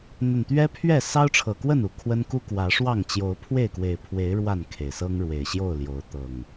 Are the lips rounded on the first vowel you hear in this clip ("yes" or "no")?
no